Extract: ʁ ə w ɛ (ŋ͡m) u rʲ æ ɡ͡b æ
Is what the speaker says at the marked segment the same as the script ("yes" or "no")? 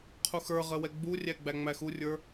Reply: no